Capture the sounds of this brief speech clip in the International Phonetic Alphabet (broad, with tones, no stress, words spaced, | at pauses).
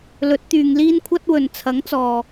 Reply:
lɵ˨˥t̚t̪yː˨ŋ liː˥nkʷʰɐ˥t̚wɵ˨n t͡sʰɐ˨˥ŋ t͡sɔː˨